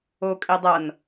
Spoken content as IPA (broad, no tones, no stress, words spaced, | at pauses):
o kʼedˤʌn